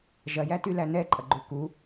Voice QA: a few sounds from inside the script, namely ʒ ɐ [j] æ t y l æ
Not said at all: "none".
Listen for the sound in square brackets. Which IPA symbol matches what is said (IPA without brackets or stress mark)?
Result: j